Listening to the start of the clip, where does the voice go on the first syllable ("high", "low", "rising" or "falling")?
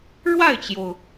falling